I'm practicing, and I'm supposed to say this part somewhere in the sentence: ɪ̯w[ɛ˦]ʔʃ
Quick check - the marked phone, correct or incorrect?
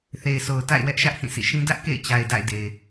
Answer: correct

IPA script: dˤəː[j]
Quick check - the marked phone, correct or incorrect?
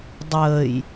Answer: correct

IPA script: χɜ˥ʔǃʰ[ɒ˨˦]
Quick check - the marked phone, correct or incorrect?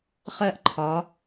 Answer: correct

